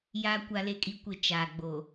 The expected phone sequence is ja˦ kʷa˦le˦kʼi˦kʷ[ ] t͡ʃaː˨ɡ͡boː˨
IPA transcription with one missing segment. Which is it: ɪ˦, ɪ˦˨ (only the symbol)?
ɪ˦˨